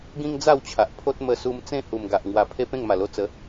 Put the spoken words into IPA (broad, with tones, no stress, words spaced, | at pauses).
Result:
ɡĩ˦ŋd͡za˥˧wt͡ɕʰa˨ʔ pʰo˦t̚ mə˧su˧m t͡sẽ˥˧hu˨˩mɡa˨ʔ ŋwa˨˩pʰe˧ pẽ˥˧ŋma˨˩lo˧ t͡sə˨˦